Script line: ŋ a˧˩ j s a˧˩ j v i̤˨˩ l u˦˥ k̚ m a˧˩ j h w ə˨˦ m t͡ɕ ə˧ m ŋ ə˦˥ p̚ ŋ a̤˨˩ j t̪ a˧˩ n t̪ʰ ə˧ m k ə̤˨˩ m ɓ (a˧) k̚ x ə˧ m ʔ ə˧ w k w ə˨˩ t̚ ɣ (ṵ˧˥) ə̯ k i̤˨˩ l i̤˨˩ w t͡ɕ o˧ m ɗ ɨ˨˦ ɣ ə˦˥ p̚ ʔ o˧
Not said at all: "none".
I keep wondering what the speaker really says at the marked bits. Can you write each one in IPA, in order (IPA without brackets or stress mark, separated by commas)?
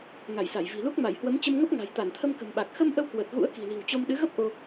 a˨˩, ṵ˧˥